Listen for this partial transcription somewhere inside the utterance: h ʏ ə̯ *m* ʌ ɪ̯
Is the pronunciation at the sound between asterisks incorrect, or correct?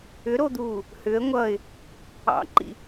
incorrect